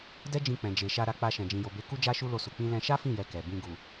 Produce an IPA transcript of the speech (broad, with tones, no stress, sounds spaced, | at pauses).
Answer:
d ɛ˦ d͡ʒ ĩ˧ k͡p ɛ̃˨ d͡ʒ e˨ ʃ a˧ ɾ a˧ k͡p a˧ ʃ ɛ̃˨ d͡ʒ ĩ˨ j o˨ b e˨˦ k u˦ d͡ʒ a˦ ʃ u˦ l o˦˨ s u˧ k͡p ĩ˦ l ɛ̃˧ ʃ a˦ f ĩ˦˨ j ɛ˧ k ɛ˨ b ĩ˧ ɡ u˨